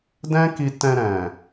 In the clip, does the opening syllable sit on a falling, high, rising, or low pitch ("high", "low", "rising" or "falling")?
high